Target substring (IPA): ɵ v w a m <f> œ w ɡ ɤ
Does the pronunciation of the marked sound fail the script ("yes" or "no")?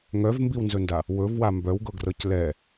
yes